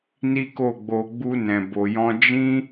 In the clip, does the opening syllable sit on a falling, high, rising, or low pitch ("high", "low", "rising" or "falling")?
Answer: high